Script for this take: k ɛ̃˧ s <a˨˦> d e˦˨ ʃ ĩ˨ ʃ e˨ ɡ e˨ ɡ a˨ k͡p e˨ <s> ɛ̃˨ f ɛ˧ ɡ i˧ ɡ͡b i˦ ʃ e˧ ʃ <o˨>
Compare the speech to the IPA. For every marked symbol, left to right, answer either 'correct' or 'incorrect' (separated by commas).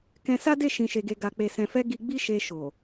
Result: incorrect, correct, correct